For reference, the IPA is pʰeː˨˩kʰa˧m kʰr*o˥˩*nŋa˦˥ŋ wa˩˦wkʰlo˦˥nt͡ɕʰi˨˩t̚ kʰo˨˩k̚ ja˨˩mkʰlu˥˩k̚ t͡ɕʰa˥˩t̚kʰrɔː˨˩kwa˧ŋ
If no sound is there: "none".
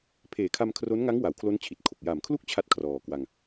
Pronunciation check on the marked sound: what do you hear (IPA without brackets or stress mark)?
o˦˥